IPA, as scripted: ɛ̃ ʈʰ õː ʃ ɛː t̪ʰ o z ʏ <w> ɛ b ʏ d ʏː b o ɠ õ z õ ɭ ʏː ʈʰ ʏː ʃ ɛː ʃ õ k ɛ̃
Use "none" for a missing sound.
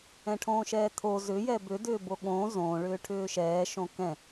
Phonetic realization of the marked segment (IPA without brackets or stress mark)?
j